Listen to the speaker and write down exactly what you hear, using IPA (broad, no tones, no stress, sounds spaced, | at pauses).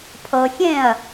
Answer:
pʰ ɤ xʲ ẽ ɐ̯